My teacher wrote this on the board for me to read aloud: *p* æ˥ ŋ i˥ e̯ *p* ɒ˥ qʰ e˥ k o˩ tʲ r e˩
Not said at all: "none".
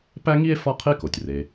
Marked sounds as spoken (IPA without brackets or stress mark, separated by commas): p, f